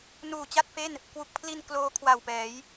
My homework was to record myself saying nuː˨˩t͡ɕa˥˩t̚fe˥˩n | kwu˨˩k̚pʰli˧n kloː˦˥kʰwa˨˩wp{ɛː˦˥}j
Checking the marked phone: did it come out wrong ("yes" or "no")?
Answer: yes